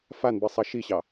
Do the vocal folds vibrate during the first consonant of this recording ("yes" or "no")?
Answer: no